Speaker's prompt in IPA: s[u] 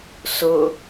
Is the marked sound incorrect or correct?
incorrect